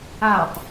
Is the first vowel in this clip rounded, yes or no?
no